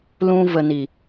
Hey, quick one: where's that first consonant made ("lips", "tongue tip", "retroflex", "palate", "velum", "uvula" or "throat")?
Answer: tongue tip